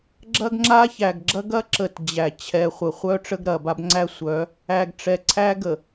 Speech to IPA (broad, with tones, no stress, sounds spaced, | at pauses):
ɡ͡ǁ ɐ˦ ɡ ŋ͡ǁ a˦ ç æ˨ ɡ ɡ͡ǁ ɐ˦ ɡ ɐ˦ ǁ ə˨ t d͡ʑ æ˨ t͡ɕʰ ɛ˨ χʷ ə˨ χʷ œ˦ ʈ͡ʂ ə˦ ɡ ɾ ɐ˨ b a˦ b ŋ͡ǀ æ˦ sʷ œ˨˦ | æ˨ ɡ ʈ͡ʂ ɛ˨ ǀʰ æ˦ ɡ ə˨